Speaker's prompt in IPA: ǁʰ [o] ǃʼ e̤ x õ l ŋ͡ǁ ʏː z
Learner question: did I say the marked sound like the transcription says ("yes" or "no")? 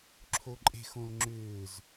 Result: yes